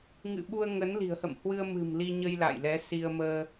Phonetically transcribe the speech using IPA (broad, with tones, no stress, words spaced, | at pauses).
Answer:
ŋɨ̰˧˨ɓu˧ə̯ ŋə˨˦nli̤˨˩ə̯hə̰˧˨m hwɨ˧ə̯mɨ̤˨˩m li˧ ɲə˧jla̰ː˧˨j lɛ˨˦si˧ə̯ məː˧